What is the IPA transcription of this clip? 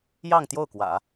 jɑ˥˧ŋ t̪jo˥˩ʊ̯kwä̰˨˩˦

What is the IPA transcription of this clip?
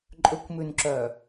ǃʼɵkʷmʉnǁœ

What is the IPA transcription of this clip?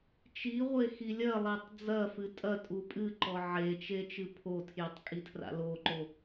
t͡ʃiʁʷe xilʲɐlˠetˤ d͡zɐfɨ tʼɐtʼu pʼɨǃɔ ʕet͡ʃe t͡ʃɨpʰotʰjitˤ kʼitʰra̰loǃo

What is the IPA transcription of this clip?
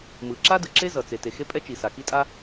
mɯ˩ǁa˥dɯ˩ ǁe˥zʌ˩ t͡se˩te˩ xe˥pʼɛ˥t͡ʃi˩sa˩ ki˥tʼa˥

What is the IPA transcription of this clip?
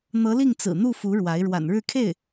n̪ɤ˧˥li˥˩ŋt͡sɹ̩˨˩n̪u˥˩ fu˧˥ɻwa˧˥ɪ̯ ɻwa̰˨˩nɻɻ̩˥˧kʰe˥˩ɪ̯

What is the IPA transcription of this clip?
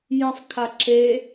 jə̃sˤkʰa ǁe

